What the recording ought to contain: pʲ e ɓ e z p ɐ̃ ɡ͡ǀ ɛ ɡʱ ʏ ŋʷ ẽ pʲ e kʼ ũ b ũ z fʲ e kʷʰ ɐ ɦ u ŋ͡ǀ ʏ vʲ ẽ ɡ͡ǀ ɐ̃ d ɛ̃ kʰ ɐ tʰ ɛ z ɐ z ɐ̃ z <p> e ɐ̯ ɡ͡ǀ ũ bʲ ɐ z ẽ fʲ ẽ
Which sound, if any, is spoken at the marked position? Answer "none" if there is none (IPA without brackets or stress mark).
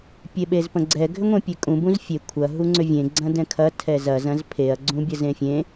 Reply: pʰ